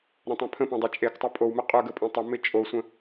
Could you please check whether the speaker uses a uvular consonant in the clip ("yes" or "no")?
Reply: yes